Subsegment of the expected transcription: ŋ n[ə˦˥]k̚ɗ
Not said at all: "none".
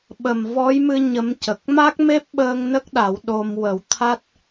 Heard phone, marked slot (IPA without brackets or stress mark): ə˦˥